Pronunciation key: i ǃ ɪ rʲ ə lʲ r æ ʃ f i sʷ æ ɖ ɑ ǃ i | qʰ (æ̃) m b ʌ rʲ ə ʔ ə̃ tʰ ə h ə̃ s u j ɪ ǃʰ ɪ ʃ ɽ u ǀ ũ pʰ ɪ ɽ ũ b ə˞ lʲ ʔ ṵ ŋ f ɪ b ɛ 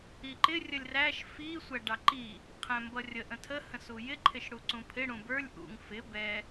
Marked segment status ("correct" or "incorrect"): correct